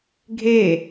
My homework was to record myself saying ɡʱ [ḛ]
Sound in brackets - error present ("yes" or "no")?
yes